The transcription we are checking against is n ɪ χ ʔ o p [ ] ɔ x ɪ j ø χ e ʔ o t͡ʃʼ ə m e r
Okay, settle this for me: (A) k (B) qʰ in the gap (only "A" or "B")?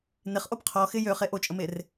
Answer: B